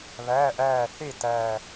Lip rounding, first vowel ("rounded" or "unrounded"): unrounded